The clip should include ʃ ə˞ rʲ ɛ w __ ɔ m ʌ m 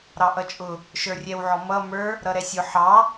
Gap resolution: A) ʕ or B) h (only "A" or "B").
A